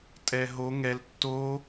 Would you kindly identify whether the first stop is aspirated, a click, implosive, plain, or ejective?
ejective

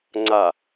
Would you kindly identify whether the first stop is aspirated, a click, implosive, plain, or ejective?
click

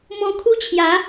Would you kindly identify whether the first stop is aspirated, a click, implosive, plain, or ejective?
aspirated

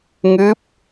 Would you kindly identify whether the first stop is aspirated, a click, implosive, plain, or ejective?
plain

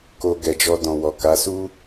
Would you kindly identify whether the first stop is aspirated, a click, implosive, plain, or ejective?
plain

